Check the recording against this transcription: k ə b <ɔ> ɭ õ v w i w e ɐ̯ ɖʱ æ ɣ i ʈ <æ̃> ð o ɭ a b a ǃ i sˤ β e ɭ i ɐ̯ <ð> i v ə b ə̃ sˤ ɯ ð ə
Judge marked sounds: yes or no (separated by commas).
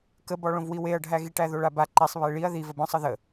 yes, no, yes